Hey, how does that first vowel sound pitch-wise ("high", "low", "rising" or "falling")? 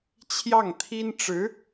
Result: falling